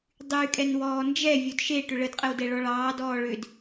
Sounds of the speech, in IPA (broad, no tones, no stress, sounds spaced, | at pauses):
dˤ y kʼ ɛ n w ɔː n d͡ʒ ɛ vʲ o d ʃ e ʈ ʏ ɭ ə d qʼ ə w d ɛ ɭ ɔ ɭ ɑː d ɔː ɭ ʏ d